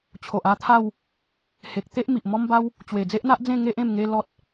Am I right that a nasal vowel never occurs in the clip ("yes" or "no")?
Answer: no